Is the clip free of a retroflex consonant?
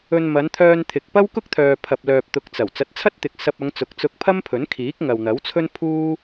yes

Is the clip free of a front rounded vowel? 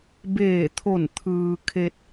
yes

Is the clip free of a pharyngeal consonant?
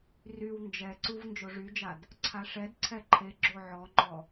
no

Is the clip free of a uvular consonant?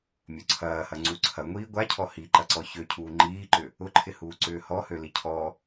yes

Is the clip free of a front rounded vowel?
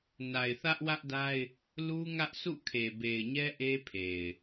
yes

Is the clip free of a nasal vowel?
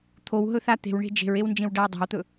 no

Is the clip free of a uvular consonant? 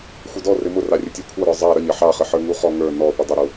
no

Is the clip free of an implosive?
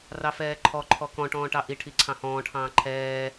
yes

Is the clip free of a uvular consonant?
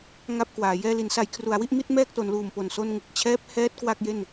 yes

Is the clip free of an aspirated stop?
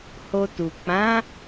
yes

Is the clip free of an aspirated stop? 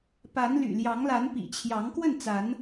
no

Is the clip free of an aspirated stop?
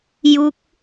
yes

